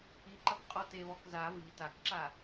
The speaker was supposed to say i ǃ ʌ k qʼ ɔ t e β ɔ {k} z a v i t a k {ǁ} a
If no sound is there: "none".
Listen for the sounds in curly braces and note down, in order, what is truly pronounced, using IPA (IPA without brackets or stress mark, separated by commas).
k, ǁ